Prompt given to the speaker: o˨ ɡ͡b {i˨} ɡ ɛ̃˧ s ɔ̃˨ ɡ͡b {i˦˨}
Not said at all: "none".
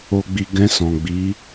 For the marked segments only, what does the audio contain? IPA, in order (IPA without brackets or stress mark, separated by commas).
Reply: i˨, i˨˦